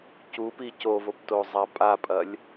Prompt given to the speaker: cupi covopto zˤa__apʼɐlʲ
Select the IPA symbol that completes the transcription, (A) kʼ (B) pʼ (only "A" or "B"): B